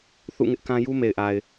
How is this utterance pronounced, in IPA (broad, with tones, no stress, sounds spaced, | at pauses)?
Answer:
θ ṵ˦˨ ŋ ɪ˦ ʔ k ã˦ j u˦ m e˨ ɪ̯ ʔ a˨ ɪ̯